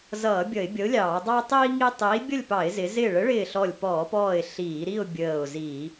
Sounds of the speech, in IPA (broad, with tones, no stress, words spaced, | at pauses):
zʌː˧˩˧ bʲʌ˧˩˧ɪ̯bʲʌ˨˥ʊ̯lʲɑː˧˩˧ dˤɑ˦tˤiː˦ ŋi˦ tˤiː˨˥bʲʌ˥˨lʲpɑ˧˩˧ɪ̯ zɪ˨˥ zɪː˧˩ɭə˨˥ɭɪː˧˩ ɬɔ˧˩lʲpɔː˧˩˧pɔː˧˩ɪ̯ ɬiː˧˩˧ɾi˥˨ʊ̯ bʲəː˧˩ʊ̯zi˧˩˧